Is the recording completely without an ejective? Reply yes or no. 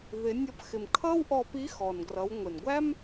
yes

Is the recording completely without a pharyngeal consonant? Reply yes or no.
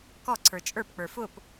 yes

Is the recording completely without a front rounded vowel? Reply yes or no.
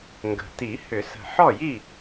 no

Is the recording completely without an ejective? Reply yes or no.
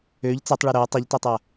yes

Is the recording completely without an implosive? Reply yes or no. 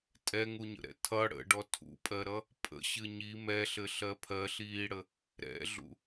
yes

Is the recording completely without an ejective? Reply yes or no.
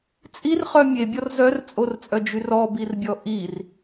no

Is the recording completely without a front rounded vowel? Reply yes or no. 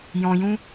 yes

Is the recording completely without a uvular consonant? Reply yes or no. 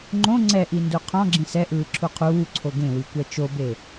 no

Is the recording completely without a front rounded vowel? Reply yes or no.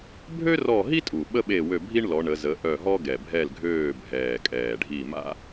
no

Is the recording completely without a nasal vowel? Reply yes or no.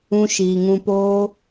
no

